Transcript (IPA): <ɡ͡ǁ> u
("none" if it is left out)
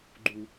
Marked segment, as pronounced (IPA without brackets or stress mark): ɡ͡ǃ